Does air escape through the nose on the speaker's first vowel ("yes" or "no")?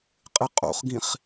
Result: no